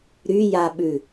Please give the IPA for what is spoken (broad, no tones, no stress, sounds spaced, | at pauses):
ɾ y j a ɓ ʉ